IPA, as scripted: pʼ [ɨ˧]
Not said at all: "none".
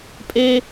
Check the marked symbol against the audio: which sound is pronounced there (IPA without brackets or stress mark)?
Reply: e˧